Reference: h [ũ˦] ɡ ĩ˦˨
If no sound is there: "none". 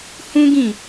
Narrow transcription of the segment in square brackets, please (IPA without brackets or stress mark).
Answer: ũ˦